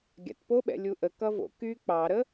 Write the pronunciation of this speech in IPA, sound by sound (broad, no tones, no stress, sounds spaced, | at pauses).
ɡʲ a̰ t p o ɓ ɛ̰ lʲ u ʔ ə k ʌ v o̰ k y k͡p ɑ ɾ ə